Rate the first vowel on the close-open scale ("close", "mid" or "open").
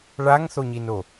open